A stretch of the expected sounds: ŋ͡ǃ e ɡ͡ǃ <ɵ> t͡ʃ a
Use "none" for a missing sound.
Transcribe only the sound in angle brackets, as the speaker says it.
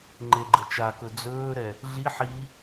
ə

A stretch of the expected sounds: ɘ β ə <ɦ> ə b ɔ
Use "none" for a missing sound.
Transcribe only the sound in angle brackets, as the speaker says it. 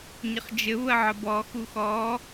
ʕ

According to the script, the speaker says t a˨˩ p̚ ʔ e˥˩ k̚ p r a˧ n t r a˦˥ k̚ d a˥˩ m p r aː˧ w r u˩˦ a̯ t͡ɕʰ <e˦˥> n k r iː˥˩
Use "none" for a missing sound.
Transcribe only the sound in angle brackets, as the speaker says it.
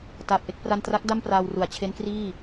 e˦˥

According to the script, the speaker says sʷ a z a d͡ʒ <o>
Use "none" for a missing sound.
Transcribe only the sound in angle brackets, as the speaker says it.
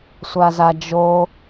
o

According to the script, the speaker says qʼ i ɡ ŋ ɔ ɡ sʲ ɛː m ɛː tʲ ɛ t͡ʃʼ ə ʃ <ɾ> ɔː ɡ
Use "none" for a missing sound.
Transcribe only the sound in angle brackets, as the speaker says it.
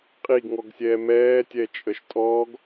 tʼ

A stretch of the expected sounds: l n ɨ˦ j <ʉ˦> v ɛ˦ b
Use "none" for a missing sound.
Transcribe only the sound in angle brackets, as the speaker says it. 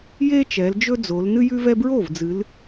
ʉ˦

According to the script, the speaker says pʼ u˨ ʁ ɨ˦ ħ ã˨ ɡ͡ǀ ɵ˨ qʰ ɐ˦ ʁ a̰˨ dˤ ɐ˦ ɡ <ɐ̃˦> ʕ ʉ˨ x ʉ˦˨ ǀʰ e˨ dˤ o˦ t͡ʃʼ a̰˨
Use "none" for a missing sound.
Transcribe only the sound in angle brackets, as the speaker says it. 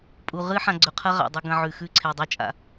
ɐ̃˦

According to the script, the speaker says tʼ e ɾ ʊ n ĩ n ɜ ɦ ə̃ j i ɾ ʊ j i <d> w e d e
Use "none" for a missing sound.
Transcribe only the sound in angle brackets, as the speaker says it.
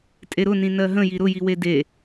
none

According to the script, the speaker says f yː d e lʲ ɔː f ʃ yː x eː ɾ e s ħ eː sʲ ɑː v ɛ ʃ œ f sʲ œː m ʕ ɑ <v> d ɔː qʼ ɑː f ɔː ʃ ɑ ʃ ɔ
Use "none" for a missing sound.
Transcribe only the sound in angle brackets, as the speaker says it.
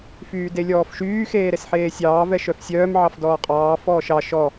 f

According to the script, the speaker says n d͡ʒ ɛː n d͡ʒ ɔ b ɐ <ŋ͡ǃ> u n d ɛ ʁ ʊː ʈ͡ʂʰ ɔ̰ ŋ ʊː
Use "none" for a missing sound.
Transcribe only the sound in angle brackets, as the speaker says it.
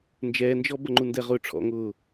ŋ͡ǃ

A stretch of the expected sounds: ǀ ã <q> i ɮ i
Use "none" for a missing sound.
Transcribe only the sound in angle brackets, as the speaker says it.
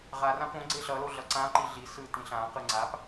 ǃ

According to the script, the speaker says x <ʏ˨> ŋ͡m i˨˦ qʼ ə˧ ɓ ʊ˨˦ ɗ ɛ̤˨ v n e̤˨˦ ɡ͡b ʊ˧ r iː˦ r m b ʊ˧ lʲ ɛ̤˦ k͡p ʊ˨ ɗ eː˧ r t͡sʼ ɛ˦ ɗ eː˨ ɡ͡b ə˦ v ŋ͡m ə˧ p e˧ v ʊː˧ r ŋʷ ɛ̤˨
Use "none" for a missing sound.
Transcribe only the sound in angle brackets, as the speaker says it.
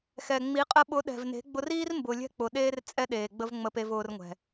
ɛ˨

